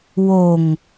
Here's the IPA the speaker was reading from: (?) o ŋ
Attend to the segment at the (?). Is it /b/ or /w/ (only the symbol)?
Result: w